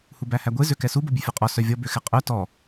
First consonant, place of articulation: glottal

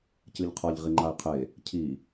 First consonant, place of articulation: palatal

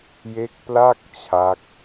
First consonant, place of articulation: palatal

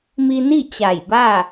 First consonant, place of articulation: labial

